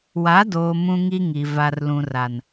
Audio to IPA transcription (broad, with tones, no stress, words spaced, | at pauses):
wa˨˦doː˨ mũ˦ŋi˦ŋi˨ va˨r lũ˨ra˨n